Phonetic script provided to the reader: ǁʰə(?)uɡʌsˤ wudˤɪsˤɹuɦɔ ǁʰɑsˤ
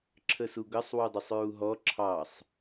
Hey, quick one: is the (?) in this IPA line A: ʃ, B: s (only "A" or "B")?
B